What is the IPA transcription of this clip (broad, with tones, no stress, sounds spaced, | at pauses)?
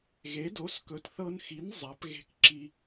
ɣ e˩˥ d o˩˥ s k ɵ˩˥ t θ ɤ˧ n x i˩˥ n zˤ a˩˥ p ɣ e̤˧ k ǁ i˧